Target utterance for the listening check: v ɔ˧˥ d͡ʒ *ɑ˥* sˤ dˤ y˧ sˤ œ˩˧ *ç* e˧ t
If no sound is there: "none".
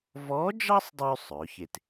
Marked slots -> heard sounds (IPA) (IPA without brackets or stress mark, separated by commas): ɑ˥, ç